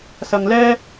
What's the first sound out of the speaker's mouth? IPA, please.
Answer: s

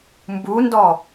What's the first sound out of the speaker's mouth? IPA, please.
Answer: m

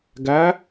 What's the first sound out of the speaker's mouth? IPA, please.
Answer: ɡ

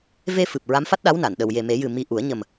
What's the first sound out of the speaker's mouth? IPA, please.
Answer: v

